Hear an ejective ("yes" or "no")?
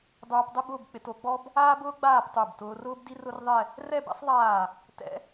no